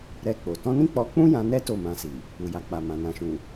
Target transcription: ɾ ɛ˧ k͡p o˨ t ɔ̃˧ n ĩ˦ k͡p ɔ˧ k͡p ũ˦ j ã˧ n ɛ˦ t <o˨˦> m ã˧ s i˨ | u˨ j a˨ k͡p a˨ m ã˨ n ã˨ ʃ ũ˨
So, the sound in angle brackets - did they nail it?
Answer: no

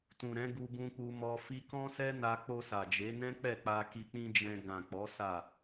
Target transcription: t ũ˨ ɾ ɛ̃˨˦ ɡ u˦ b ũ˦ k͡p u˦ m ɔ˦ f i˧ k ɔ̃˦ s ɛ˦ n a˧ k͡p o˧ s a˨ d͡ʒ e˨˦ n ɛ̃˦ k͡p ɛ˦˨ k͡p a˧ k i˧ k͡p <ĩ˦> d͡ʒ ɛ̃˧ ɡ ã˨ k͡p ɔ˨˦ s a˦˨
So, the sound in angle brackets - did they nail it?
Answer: yes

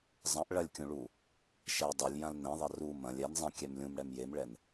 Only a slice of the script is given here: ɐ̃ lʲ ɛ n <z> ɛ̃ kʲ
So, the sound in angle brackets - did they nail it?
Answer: no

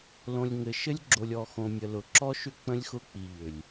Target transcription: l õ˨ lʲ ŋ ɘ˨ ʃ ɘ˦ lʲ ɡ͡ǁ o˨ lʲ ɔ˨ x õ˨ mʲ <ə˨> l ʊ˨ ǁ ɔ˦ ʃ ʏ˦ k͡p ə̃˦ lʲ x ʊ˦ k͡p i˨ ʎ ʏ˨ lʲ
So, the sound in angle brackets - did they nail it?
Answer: yes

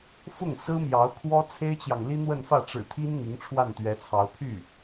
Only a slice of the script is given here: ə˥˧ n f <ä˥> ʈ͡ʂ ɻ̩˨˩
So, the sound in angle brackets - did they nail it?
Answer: no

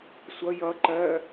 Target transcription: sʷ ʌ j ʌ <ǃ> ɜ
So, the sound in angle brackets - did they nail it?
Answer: yes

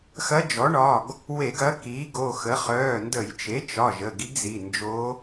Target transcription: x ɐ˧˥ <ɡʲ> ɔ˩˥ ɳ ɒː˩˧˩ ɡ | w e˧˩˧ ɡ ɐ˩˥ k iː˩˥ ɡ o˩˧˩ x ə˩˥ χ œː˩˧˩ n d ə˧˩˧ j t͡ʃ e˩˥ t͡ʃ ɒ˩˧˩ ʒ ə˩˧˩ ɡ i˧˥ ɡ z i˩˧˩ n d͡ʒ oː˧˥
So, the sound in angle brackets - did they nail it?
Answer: no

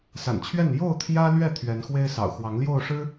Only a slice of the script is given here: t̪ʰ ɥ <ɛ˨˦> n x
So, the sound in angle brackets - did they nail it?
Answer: yes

